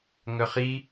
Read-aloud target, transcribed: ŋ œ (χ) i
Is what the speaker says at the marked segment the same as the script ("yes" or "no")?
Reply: yes